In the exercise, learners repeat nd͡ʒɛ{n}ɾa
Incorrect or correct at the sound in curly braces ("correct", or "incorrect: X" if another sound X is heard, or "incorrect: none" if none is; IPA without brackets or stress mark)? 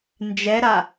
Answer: incorrect: none